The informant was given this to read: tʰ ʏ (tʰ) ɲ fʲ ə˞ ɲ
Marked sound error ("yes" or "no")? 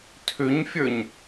yes